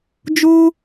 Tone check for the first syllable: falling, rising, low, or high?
high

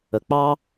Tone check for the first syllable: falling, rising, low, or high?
low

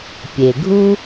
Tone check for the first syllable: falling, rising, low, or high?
low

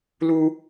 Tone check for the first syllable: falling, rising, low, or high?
high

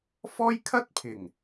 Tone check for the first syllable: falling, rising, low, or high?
high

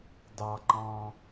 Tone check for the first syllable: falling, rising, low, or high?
low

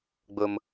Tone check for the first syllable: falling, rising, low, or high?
high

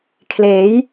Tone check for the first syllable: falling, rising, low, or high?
rising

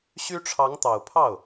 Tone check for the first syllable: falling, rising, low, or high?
high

